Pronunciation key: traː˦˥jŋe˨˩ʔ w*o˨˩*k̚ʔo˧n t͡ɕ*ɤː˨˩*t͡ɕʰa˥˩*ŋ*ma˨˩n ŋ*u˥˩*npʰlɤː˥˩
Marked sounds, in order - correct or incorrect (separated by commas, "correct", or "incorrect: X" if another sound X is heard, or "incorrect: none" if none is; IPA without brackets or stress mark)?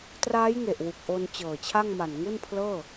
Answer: incorrect: u˨˩, correct, correct, correct